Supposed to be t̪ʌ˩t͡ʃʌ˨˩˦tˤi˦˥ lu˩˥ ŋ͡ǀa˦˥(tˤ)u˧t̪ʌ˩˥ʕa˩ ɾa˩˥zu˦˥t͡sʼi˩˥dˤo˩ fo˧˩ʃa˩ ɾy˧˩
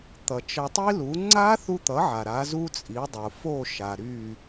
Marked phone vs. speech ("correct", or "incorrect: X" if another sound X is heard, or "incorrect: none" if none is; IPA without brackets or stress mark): incorrect: θ